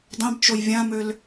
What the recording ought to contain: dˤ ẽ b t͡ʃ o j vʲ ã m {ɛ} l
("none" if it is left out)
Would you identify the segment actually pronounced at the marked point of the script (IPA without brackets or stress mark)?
ø